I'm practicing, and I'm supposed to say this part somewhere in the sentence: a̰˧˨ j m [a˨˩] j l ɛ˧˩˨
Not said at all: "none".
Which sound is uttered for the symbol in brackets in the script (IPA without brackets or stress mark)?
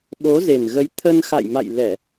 a̰˧˨